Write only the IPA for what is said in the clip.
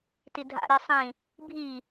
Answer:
tidʱa̰ɾi sˤĩ | bʱi

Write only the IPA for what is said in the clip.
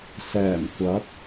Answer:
sɛː˨˩mkʷɐ˨˥k̚

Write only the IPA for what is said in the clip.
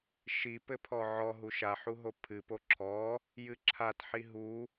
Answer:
ʃi pɘpʰɔʕɔ ɦuʃa ħuɦopʰɨ poǁʰɔ | jɨǁʰat ħiɦu

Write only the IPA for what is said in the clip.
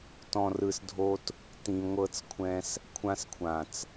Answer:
tɔ̃˨rɯ˨sdʱo˧t | tĩ˨ ŋʷɤ˧t͡skʷʰɛ̃˧s | kʷʰã˧skʷʰã˨t͡s

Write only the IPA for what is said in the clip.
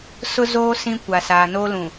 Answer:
sʊ˦zoː˦ sĩ˦kʷa˨ saː˨no˦lũ˨

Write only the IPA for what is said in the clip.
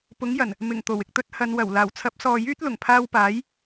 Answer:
pʊ˨˥ŋjɐ˨˩n | mɪ˨˩ŋ t̪o˨˩wɪ˨k̚t̪ɵ˧t̚ hɐ˨˧n wɐ˨˩w laː˨˩wt͡sʰɐ˨˥p̚sɔː˨ jyː˥t̚lʊ˨˩ŋpʰaː˧wpaː˨˥j

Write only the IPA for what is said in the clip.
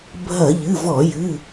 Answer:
bʱɐ˧˩˧ʎɨ˩˧˩vɔ˧˩˧jɨ˩˧˩

